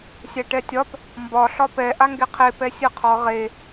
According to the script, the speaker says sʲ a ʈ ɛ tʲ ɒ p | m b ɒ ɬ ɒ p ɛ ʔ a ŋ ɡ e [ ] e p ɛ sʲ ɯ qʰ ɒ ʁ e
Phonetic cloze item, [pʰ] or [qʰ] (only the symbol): qʰ